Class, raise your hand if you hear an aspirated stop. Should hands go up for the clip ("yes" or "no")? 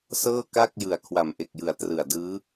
yes